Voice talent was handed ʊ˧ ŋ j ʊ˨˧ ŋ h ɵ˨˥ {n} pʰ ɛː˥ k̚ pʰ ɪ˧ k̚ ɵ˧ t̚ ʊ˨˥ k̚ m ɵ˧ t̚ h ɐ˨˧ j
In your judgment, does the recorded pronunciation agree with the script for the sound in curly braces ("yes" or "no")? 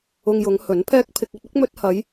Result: yes